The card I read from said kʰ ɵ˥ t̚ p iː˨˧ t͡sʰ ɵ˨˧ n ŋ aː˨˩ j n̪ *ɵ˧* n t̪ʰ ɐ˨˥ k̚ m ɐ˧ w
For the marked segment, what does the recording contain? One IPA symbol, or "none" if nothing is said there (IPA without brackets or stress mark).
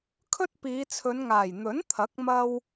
ɵ˨˥